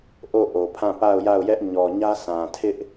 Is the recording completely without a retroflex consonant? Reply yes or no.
yes